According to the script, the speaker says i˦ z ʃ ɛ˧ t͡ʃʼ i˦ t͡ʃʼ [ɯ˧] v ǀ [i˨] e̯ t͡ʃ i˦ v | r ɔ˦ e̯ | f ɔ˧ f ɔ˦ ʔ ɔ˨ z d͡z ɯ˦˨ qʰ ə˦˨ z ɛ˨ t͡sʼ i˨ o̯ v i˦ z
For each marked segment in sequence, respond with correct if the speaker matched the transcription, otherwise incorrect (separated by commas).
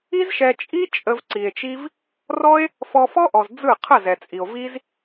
incorrect, correct